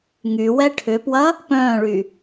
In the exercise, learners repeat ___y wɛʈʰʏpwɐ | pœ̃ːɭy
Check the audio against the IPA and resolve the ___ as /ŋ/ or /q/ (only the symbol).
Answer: ŋ